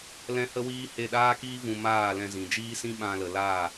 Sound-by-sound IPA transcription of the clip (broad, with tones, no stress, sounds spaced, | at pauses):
l ɛ̃˦ h ə˦ w iː˦ h e˦˨ ɗ aː˦ k iː˦ v ũ˧ m aː˦˨ l ɛ̃˧ z ĩ˨ d͡ʒ iː˦ s ĩ˦ ɓ ã˧ l ə˨ l aː˦˨